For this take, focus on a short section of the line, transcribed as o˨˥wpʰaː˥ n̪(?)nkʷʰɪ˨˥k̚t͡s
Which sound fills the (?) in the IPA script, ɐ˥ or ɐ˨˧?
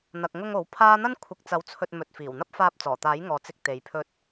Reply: ɐ˥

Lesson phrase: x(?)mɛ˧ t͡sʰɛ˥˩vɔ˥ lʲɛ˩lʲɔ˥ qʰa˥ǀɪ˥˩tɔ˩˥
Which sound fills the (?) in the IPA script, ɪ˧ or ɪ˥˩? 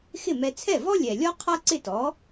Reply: ɪ˥˩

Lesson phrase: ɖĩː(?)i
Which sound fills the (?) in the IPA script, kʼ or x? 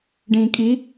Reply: kʼ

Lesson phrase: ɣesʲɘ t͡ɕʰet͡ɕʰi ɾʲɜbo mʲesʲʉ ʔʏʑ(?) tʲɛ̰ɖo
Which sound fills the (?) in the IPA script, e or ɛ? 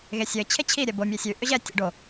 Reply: ɛ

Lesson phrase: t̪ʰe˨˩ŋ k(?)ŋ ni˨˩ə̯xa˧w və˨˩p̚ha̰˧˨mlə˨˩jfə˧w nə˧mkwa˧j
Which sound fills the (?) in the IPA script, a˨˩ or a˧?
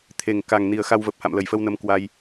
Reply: a˨˩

